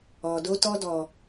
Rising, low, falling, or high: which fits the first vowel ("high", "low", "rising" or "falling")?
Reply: low